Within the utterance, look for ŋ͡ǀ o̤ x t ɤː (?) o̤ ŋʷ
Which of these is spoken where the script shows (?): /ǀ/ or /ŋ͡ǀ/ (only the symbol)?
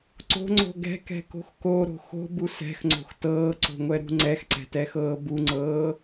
ǀ